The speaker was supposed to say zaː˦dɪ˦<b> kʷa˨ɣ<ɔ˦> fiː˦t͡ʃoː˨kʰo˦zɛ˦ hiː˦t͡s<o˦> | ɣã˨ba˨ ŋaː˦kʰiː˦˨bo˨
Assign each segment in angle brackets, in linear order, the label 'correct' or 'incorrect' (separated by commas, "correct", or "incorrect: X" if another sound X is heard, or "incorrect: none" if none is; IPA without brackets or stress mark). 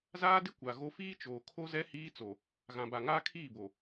incorrect: none, incorrect: o˦, incorrect: o˨